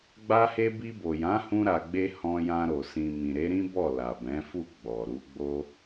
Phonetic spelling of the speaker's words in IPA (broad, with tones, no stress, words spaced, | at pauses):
ɡ͡ba˦he˦ bi˧bo˨jã˨˦hũ˧ ɾa˨ɡ͡be˧ hɔ̃˧jã˧ɾo˨ sĩ˨mĩ˨ɾe˨˦ɾĩ˦ bɔ˦˨la˨bɛ̃˨˦fu˦˨ ɡ͡bɔ˨ɾu˨˦ ɡ͡bo˧